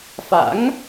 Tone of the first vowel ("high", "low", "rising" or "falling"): rising